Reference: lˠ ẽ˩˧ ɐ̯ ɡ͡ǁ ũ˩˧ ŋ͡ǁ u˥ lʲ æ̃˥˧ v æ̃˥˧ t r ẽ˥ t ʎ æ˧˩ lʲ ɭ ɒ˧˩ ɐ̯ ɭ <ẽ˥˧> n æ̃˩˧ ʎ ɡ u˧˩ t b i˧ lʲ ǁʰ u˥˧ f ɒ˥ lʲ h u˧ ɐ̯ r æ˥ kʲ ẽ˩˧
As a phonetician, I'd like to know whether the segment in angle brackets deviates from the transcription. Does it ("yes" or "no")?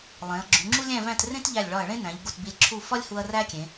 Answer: yes